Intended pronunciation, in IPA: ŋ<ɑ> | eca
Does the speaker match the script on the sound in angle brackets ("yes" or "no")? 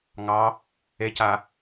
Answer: yes